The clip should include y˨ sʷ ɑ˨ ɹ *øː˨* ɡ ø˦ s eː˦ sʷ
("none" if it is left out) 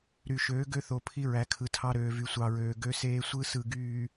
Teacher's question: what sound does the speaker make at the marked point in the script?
øː˨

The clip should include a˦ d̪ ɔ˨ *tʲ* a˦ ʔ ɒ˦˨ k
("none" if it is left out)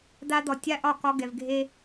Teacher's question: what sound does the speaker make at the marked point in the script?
tʲ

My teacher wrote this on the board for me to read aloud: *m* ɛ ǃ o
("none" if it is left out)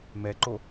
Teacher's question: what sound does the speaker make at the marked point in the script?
m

